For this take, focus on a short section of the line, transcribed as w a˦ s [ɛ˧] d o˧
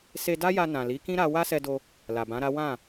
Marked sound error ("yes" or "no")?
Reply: no